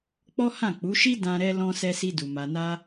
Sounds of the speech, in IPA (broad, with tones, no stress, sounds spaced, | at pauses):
k͡p ɔ˦ h ã˦˨ k͡p u˨˦ ʃ i˦ d ã˧ ɾ ɛ˧ l ɔ̃˧ s ɛ˧ s i˧ d u˨ m a˨ n a˧